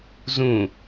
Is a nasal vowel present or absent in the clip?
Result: present